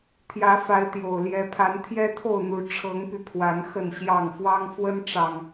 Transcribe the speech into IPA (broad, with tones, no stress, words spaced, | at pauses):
t̪ʰjä˨˦fa˨˦ɪ̯t̪jo˨˩ʊ̯ ljɛ˨˦pʰa˨˦nt̪ʰjɛ˦ t̪ʰo˥˨ʊ̯n̪u˨˦ ʈ͡ʂʰɤ˨˦ŋpy˧ pʰwa˨˦n xə˥˨nɕjɑ˥˨ŋ fwɑ˦ŋfwə˦n ʈ͡ʂɑ˨˩ŋ